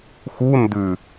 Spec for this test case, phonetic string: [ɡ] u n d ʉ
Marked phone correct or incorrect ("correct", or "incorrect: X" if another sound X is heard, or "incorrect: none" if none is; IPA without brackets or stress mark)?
incorrect: x